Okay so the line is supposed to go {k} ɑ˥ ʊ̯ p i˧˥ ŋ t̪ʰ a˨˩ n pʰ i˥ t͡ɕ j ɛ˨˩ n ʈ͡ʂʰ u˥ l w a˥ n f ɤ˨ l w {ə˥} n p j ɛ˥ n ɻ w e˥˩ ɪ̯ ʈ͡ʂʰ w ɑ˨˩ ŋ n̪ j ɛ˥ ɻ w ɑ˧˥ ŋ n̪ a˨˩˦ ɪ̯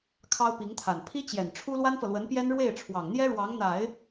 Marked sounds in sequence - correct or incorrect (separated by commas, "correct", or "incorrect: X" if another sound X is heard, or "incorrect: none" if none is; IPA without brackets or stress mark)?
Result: incorrect: kʰ, incorrect: ə˧˥